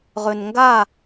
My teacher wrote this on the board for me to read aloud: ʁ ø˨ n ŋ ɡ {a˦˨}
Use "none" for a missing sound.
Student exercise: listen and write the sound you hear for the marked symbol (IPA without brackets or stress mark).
a˦˨